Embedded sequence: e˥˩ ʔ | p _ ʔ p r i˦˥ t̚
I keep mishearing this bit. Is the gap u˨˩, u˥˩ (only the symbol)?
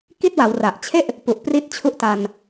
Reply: u˨˩